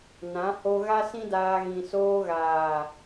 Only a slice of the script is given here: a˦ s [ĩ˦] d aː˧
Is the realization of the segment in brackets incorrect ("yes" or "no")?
no